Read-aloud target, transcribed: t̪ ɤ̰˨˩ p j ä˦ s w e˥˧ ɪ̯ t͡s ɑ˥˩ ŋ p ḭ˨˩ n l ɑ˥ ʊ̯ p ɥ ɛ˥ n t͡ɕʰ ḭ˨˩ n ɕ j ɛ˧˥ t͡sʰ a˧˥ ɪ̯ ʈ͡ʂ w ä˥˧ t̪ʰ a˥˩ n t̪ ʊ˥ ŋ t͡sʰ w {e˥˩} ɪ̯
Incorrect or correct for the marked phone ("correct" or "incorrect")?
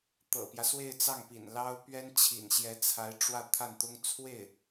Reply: correct